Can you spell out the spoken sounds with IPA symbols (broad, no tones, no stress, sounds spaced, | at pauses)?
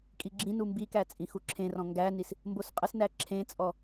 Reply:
kʼ i ɡ͡ǁ ĩ n u m b i k æ t͡sʼ ĩ x u ǁʰ ẽ r ɔ̃ ŋ ɡ æ n i s | m b o s qʼ ə s n æ ǁʰ ẽ t͡sʼ ɔ